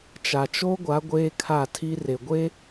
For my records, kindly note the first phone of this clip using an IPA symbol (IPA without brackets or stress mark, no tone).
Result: t͡ʃ